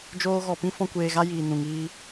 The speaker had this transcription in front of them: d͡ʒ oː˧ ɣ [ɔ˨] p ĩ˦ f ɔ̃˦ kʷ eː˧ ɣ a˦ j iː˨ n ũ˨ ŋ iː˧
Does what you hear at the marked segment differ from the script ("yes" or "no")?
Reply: no